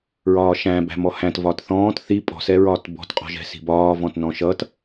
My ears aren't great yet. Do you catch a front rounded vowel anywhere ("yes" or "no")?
no